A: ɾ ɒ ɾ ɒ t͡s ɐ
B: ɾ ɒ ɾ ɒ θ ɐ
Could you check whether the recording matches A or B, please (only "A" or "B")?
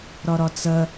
A